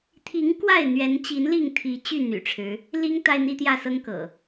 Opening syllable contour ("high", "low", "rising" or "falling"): rising